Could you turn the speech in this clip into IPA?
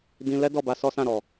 d ĩ˧ l ɛ˦ d ɔ˦˨ b a˧ s ɔ˦ s ã˦˨ ɾ ɔ˨

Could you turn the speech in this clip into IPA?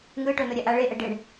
ŋ ɯ ʈ o n o ɾʲ a ʔ a ɭ e ʔ ɛ ɖ e ɳ

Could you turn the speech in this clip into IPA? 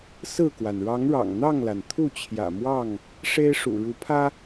s ɹ̩˥˨ k w a˩ n ɻ ɑ˨˦ ŋ ɻ ɑ̰˨˩ ŋ n̪ ɑ˥˨ ŋ l a˩ n t̪ʰ u˥˨ t͡ɕʰ j ä̰˨˩ m w ɑ˥˨ ŋ | ʂ e˦ ɪ̯ ʂ ṵ˨˩ ɻ u˨˦ pʰ ä˦

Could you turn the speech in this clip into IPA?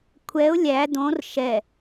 kʷʰ ɛ ʊ̯ lʲ æ d õ r ʃ ɛ

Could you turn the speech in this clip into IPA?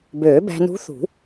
b øː˨˩˦ b æ̤˧ n ṳ˧˥ θ ṳ˨˩˦

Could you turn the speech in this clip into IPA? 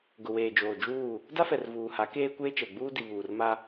ɡ ʊ˨ w eː˨ d͡ʒ oː˨ d͡ʒ uː˦˨ | d a˦ f ɛ˨ r v uː˨ h a˨˦ k eː˦ kʷ eː˦ t͡ʃ ɛ˨ ɡ͡b uː˦ d i˨ β uː˨ r m a˦

